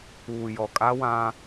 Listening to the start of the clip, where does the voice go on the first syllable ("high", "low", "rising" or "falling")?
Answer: low